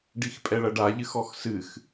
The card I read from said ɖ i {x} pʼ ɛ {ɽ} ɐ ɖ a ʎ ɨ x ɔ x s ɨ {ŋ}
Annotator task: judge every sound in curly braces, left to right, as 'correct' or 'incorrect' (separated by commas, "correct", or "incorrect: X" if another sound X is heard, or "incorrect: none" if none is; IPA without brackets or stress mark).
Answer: correct, incorrect: ɭ, incorrect: x